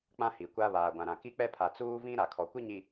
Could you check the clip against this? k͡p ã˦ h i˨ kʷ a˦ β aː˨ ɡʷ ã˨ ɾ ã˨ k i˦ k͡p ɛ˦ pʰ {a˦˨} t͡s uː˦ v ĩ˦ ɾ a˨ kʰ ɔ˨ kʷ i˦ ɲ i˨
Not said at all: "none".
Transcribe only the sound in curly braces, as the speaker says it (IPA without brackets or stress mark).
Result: a˨